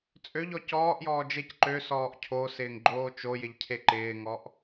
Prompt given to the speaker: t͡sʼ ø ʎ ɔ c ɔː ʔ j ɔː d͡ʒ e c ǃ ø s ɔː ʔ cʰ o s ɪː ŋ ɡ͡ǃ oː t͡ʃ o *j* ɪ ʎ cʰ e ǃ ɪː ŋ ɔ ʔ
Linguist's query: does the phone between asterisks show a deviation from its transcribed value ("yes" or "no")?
no